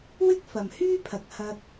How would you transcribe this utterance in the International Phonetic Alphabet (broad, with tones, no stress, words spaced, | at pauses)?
wɪ˥k̚fɐ˨mhyː˥pʰɐ˨k̚ hɐ˧k̚